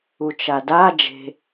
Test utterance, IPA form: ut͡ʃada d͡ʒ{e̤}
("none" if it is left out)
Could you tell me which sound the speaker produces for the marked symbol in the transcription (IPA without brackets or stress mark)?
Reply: e̤